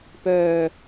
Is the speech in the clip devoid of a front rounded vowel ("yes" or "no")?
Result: no